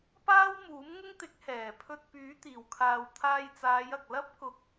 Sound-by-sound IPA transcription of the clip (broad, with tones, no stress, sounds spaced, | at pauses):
p aː˥ w m uː˨˥ m ŋ ʊ˥ ŋ t̪ ɪ˨˥ k̚ h ɛː˨˩ pʰ ɵ˧ t̚ p yː˨˥ t̪ iː˨˩ w kʰ aː˨ w t̪ʰ aː˧ j t͡s aː˨˧ j ɐ˨ k̚ l ɐ˥ p̚ k ʊ˨˥ k̚